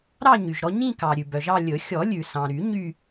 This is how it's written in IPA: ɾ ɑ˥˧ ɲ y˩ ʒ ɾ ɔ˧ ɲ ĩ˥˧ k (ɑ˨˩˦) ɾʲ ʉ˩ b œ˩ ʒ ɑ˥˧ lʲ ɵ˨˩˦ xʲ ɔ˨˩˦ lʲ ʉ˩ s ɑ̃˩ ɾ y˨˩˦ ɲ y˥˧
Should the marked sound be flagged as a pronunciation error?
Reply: yes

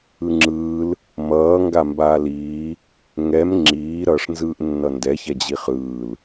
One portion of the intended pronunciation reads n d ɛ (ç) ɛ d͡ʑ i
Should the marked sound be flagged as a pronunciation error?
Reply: no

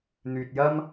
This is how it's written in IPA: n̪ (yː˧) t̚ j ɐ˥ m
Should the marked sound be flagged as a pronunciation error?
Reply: no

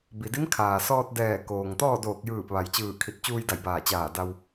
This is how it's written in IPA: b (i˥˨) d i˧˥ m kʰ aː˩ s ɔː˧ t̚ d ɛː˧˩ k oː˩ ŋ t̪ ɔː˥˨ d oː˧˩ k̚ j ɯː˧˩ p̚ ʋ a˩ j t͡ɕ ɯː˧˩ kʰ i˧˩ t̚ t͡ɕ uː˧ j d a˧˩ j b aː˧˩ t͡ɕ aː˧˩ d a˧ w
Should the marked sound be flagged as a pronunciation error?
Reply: yes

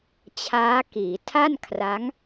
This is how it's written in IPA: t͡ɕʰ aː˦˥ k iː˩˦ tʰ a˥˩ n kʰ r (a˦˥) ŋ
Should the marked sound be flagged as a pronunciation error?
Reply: no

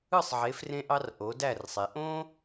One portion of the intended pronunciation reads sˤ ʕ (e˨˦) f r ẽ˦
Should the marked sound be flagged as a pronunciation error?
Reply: no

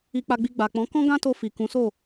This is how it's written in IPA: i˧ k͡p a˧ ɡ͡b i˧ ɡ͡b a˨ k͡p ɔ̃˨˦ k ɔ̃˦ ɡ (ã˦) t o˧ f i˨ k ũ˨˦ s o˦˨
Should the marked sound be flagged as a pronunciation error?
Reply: no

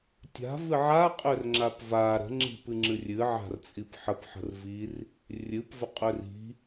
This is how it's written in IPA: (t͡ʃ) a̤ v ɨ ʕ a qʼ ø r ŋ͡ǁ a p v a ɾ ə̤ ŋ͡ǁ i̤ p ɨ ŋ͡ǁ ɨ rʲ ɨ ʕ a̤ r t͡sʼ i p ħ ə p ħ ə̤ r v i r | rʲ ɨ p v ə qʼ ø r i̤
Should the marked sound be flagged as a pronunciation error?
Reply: yes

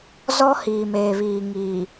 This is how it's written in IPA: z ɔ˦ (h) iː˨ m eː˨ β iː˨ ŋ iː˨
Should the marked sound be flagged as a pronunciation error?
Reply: no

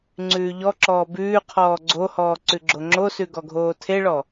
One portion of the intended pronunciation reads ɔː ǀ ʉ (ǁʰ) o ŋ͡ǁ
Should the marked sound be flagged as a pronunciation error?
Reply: yes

